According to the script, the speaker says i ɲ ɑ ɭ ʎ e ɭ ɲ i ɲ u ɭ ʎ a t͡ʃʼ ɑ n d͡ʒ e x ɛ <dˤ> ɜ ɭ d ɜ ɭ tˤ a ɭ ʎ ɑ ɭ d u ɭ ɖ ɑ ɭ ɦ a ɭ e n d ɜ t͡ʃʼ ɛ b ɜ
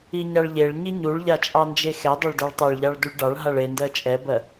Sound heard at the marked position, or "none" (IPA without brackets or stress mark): dˤ